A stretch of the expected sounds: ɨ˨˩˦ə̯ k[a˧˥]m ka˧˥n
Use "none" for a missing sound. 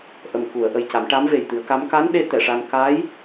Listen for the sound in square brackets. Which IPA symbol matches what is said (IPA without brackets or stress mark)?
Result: a˧˥